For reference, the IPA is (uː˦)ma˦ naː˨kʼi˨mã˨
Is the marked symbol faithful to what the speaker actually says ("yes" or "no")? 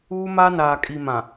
yes